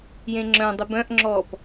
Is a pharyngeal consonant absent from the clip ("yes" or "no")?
yes